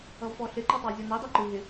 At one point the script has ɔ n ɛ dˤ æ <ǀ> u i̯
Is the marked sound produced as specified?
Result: no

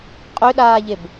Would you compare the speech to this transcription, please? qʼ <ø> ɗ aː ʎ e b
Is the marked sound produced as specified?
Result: yes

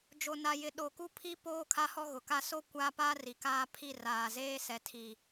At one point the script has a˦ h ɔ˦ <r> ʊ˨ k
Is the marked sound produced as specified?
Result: no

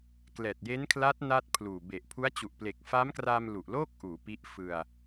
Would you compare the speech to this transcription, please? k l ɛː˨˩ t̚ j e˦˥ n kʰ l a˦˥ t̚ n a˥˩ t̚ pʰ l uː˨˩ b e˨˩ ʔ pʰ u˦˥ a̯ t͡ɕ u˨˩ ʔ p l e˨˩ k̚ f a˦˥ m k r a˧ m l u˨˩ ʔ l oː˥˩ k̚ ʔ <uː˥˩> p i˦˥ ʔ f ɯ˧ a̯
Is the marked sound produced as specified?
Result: no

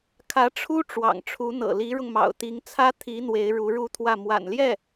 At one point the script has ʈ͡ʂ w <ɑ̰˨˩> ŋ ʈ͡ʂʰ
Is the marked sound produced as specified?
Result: yes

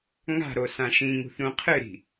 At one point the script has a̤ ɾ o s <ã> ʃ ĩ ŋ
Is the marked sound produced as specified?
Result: yes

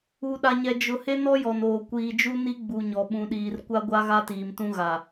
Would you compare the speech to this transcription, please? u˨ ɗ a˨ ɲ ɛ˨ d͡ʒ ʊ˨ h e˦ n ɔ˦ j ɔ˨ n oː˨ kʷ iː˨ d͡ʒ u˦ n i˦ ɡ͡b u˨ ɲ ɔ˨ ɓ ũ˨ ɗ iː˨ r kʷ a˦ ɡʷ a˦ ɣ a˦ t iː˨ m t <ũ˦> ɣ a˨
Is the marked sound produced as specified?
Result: yes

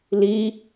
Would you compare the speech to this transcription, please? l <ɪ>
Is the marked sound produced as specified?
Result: no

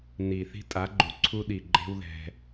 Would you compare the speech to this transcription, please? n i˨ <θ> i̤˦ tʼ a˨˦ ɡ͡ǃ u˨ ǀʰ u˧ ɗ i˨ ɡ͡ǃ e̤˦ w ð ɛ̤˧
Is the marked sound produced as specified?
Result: yes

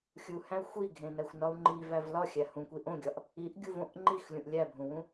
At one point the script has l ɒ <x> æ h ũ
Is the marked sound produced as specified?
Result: no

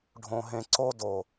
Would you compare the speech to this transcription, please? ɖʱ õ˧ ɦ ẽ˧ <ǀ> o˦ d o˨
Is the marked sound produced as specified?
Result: yes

